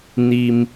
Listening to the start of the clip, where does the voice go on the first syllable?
low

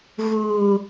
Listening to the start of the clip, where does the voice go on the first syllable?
low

